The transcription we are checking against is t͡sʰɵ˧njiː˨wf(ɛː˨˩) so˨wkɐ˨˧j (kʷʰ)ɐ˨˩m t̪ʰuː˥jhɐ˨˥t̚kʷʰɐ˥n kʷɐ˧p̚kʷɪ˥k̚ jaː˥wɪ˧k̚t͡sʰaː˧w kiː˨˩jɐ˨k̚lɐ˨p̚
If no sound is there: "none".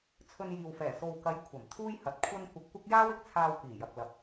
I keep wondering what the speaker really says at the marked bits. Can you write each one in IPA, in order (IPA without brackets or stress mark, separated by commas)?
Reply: ɛː˨˩, kʷʰ